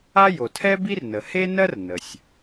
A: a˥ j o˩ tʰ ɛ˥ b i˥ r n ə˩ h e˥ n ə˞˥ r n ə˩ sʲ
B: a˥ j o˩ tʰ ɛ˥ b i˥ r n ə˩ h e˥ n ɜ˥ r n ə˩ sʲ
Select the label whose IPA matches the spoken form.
B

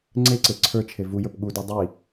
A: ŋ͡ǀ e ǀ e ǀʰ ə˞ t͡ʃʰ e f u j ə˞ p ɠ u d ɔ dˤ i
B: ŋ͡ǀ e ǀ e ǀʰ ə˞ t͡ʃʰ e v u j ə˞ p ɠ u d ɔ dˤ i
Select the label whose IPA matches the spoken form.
B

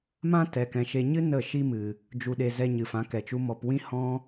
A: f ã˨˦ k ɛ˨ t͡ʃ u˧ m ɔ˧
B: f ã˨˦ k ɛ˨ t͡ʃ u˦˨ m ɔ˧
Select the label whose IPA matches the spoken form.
A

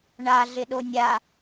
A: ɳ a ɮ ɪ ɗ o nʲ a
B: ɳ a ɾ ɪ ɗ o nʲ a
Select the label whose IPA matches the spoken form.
A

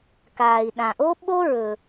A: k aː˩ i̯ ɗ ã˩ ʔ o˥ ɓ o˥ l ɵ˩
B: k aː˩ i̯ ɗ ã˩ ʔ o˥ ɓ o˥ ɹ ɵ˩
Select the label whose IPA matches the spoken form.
B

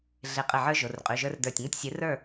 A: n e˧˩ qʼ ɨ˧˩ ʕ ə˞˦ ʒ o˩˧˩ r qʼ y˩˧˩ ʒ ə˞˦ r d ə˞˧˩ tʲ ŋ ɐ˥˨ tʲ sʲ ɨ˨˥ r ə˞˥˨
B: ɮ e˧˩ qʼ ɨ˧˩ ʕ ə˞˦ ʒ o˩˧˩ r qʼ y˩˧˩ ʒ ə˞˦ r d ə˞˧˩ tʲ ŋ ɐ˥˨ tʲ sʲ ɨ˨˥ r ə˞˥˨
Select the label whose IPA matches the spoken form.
B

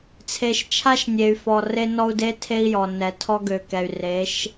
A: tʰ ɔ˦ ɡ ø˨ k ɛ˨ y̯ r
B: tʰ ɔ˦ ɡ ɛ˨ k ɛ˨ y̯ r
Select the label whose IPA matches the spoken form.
A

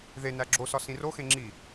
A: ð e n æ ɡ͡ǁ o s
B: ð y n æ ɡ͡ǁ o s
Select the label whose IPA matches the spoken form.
A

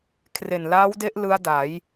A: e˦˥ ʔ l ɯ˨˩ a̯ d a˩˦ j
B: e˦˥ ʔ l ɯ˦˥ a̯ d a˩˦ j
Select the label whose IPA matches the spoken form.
B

